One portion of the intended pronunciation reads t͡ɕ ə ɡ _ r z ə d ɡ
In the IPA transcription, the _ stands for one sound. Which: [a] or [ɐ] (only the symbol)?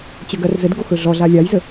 ɐ